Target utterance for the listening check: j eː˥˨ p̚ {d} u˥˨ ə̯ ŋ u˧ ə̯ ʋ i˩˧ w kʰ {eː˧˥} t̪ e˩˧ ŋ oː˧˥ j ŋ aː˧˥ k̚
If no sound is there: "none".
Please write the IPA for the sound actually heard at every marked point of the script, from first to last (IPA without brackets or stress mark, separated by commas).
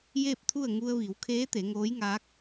t̪ʰ, eː˧˥